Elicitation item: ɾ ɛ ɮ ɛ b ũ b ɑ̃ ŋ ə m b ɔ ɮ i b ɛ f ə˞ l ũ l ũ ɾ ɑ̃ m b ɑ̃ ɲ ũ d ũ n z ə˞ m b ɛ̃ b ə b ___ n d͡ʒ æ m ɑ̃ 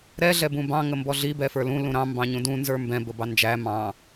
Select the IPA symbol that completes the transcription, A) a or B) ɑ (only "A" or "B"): B